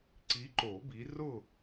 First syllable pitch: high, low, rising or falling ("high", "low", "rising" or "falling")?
rising